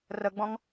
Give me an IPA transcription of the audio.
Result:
r ə ɡ͡b ɔ̃ ŋ

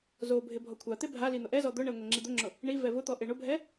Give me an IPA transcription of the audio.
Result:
z o bʱ ɪ bʱ ɔ kʷʰ a t̪ e bʱ a l i n̪ ʊ ʔ ɛ z ɔ d̪ ʊ ɳ ɛ ŋʷ ɛ ŋ͡ǁ i d̪ ʊ ŋ͡ǁ ʊ | ɳ i v ɛ v ʊ t̪ ɔ ʔ e ɳ ʊ bʱ ɛ

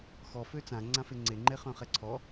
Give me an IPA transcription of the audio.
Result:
x ɔ f ø t͡s ã ŋ͡ǀ ã f e ŋ͡ǀ e ŋ͡ǃ e χ œ̃ χ ɛ ǀʰ ɔ

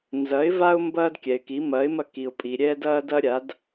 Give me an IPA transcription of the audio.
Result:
n z ɐ˩˥ ɪ̯ v a˦ ʊ̯ m b ɐː˦ d kʲ ɛ˩ ɪ̯ k i˩˥ m ɐː˩˥ ɪ̯ m ɐ˦ k i˩ ʊ̯ pʼ i˩ ɾʲ ɛː˦ d ɐː˦ d ɐ˦ ɾʲ a˩˥ d

